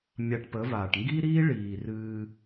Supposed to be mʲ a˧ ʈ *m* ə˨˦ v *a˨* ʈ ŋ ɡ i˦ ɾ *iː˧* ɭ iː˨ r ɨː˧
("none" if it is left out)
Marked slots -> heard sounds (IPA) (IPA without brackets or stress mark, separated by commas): p, aː˨, iː˦